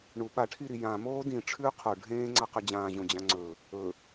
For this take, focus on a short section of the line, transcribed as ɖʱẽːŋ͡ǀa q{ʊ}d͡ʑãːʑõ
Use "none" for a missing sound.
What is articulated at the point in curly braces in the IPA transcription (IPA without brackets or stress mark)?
ʉ